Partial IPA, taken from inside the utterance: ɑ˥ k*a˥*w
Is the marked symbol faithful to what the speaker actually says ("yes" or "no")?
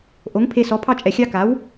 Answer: no